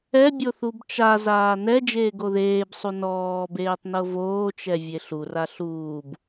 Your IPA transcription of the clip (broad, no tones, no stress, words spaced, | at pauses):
ɛbʲo θubt͡ʃa zaːnɛ d͡ʒeːɡoðeːbsˤu nɔːbeːtˤnɤ voːt͡ʃɛ vʲeɬura ɬuːb